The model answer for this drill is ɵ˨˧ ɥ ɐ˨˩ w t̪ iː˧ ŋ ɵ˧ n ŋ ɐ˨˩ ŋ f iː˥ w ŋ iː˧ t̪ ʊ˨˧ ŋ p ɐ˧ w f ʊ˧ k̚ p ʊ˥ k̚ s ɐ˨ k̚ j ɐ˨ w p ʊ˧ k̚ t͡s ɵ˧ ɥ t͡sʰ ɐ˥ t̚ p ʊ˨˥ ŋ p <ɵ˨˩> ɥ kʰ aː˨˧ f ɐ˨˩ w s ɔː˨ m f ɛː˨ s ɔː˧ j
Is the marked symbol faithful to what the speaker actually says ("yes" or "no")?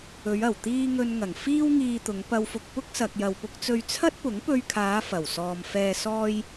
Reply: no